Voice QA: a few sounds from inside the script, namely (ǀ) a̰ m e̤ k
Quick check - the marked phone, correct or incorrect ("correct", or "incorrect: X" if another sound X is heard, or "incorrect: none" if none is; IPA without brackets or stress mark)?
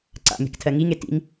correct